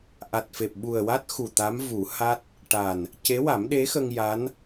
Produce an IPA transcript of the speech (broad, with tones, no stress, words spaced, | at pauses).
ʔa˨˩t̚fe˨˩p̚ɓu˨˩ə̯wa˦˥t̚ xu˨˩t̪a˧˥m vu˨˩˦ha˦˥t̚ | ʈa˨˩n | ce˧˥wa˨˩˦mɗe˧˥xə˧ŋ ja˧˥n